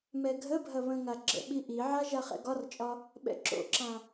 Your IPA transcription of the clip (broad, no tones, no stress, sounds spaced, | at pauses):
m ɛ ɡʱ ə bʱ ɐ β ə̃ ŋ a ɡ͡ǁ ə̰ ɓ i ʔ i ʕ a ʒ a χ ɛ̰ ɡ ɒ r t͡ʃʼ ɒ | ɓ ɛ̰ ǁ o̰ ǁ ã